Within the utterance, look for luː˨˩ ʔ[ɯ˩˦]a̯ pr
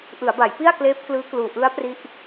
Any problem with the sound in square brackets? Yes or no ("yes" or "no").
yes